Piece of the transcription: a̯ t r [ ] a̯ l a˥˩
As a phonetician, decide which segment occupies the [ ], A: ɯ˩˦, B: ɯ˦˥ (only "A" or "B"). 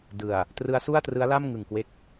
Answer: B